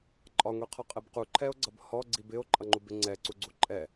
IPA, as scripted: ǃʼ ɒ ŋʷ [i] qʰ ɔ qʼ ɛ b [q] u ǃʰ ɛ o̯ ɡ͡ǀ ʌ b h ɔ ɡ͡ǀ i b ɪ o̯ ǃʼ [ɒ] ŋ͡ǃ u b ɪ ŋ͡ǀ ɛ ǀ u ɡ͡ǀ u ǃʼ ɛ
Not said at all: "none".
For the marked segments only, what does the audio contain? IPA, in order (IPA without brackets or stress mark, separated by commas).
i, q, ʌ